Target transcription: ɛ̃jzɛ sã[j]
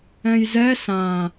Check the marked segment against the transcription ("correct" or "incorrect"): incorrect